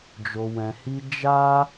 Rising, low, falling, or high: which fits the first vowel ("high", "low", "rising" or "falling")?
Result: low